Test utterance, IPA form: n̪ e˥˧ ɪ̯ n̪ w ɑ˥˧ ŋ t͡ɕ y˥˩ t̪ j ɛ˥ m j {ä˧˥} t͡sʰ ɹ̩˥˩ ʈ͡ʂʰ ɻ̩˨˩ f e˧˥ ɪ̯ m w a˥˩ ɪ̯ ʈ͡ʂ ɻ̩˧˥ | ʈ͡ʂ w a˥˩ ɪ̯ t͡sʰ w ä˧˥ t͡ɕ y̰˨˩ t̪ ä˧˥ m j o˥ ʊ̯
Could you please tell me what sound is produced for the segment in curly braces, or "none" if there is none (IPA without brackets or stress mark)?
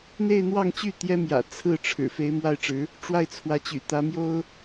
ä̰˨˩